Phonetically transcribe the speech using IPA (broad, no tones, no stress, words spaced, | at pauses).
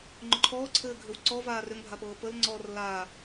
ŋ͡ǃʏǃʰɔːǀʰɘː ɡʱʏwǀɔ vaːrʏŋbʱapɤː pəl ŋ͡ǀɔːrlaː